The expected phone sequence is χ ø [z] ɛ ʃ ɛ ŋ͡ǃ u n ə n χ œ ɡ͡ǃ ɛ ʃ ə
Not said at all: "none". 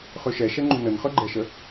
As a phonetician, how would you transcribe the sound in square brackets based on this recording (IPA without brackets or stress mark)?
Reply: ʃ